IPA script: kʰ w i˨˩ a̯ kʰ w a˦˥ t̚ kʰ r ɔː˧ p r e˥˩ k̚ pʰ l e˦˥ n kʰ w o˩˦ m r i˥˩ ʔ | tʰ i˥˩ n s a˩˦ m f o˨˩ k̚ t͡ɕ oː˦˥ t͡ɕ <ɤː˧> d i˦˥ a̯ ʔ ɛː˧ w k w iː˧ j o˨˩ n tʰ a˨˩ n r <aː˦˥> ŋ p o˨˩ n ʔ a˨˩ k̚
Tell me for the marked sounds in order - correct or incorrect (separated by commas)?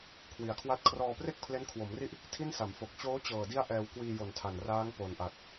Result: incorrect, correct